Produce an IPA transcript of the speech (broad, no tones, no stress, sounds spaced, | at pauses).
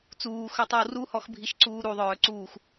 t͡s uː x œ tˤ œ w r u h ɔ x bʱ i ʃ ǀ uː ɾ u ðˤ œː ǀ uː x